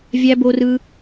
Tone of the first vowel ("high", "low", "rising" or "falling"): high